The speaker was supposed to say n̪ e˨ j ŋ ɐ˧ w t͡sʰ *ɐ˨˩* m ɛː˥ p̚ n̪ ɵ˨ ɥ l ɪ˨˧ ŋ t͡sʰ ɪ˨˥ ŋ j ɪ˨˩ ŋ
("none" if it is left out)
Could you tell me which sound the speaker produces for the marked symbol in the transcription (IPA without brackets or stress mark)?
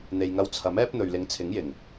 ɐ˨˥